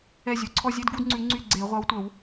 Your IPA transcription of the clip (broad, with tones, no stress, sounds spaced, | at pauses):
ɛ˦˨ zʲ ɵ˨˩ ǀʰ ɔ˦˨ zʲ e˧˥˧ d ɡ u˧˥˧ d ŋ͡ǀ ʉ˨˩˦ ŋ͡ǀ y˦˨ ɡ͡ǀ e˨˩˦ ʁʷ ɑ˨˦ w tʷ œ˨˩˦ w